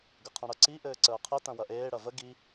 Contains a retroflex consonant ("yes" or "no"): yes